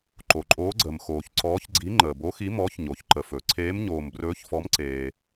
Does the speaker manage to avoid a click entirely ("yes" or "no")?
no